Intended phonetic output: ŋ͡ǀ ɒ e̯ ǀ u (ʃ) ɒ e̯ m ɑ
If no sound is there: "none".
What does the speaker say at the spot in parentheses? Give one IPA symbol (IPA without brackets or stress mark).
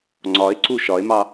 ʃ